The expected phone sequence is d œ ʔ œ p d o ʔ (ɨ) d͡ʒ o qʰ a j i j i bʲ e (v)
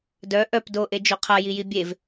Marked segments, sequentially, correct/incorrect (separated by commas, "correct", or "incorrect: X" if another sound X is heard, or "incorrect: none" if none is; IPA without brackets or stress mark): incorrect: e, correct